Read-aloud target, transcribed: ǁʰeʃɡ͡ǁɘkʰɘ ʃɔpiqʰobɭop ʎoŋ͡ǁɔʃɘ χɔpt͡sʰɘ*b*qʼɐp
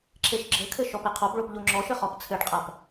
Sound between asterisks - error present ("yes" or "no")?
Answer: yes